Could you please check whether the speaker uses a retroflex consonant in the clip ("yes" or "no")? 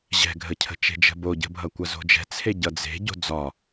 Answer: no